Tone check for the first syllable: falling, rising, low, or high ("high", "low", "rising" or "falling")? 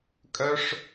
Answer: high